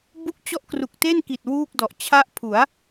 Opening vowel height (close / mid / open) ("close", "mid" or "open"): close